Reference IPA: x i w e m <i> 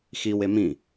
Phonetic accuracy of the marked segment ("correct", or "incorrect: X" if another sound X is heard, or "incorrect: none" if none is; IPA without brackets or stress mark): incorrect: ĩ